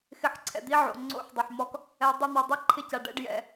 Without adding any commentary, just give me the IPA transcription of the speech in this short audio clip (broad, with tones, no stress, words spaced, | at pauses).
xɪ˨ħ ǀʰɛ̰˨d̪i˦ʕo̰˨ ŋ͡ǀo̰˦ħdˤɪ˨ħmɔ˦k | ɛ˨ dˤʊ˦˨n̪ɔ˨dˤi˦ ǃʰɪ˦ca˨ ɖɛ̰˦ɖjɛ̰˨